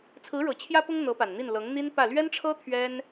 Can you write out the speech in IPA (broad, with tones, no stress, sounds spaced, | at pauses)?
t͡sʰ ɹ̩˧˥ ɻ ɤ˨˩ t͡ɕʰ j ä˥ p ʊ˥ ŋ n̪ ɤ˧˥ p a˨˩ n n̪ i˥˩ n l ɤ˧˥ ŋ n̪ i˥ n p ä˥˩ l ɥ ɛ˥ n ʈ͡ʂʰ ɤ˥ t̪ʰ ɥ ɛ˥ n